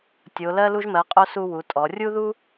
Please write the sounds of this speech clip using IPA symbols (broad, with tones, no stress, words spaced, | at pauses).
tʲo˧˥ lɜ˥lu˥ʒmɜ˧˥qʼo˥ su˥ wu˧˥tʼɔ˧˥ rʲu˥ðu˥